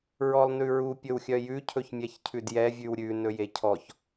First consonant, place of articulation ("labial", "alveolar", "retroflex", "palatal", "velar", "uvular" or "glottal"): alveolar